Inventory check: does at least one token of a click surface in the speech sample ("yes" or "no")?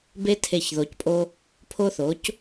no